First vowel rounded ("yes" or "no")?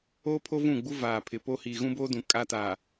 yes